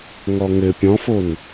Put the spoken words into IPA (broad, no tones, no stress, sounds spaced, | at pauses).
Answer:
ŋ ɔ ŋ ɘ pʲ ɔ̃ f o n